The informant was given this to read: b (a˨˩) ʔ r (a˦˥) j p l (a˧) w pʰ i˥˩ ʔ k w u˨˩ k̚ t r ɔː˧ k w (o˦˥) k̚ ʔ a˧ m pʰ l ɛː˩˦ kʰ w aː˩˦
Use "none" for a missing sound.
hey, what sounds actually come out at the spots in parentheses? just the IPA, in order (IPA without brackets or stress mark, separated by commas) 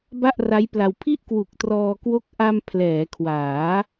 a˥˩, a˦˥, a˧, o˦˥